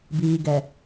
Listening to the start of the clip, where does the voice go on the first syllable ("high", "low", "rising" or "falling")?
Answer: low